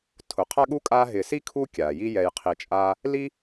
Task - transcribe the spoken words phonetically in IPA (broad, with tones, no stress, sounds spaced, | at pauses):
tʰ ʊ˩ qʰ a˦ ɠ u˦ kʼ aː˦ ɦ ɪː˨ s i˥ kʰ u˥ kʲ aː˩ j i˦ j ɛ˨ j qʰ i˨ t͡ʃʼ aː˦ | l i˥